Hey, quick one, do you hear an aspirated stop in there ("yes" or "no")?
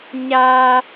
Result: no